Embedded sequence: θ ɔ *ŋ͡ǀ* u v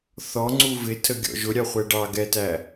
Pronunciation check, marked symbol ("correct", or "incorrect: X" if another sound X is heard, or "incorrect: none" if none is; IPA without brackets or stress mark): correct